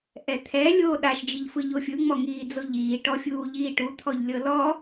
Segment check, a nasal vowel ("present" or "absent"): absent